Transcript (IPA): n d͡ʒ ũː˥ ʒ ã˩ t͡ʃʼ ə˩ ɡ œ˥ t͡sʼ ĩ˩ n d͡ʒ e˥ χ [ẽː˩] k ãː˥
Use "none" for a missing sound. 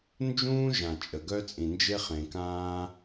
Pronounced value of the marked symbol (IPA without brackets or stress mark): ẽ˩